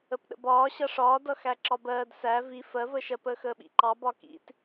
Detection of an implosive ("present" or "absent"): present